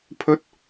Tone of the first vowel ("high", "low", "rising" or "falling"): rising